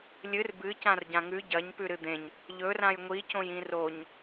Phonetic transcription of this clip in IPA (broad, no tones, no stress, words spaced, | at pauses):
lʲɨr bɨ cãrɟãŋʉ ɟɐɲ pʉɾɨd̪ẽɲ | ʎɵrãj ŋʷicõj ĩroɲ